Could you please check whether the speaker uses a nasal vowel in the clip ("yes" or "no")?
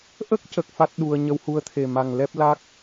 no